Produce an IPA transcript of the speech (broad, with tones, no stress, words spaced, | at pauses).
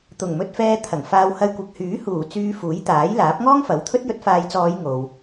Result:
t̪ʊ˨˩ŋmɵ˧t̚fɛː˧ t̪ʰɐ˨˩ŋfaː˧w hɐ˧jkʷɐ˨k̚hyː˨˥ huː˨˩ t͡syː˧fuː˨˥jt̪aː˨˥jlaː˨˥p̚ ŋɔː˥ŋfɐ˨˥wt̪ʰɵ˥t̚ jɵ˧t̚faː˨˧jt͡sɔː˨˧j ŋo˨w